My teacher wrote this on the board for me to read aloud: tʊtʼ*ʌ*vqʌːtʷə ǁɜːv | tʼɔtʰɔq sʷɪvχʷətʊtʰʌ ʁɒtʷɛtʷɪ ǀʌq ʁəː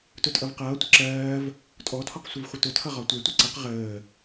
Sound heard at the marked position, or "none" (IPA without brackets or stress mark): ʌ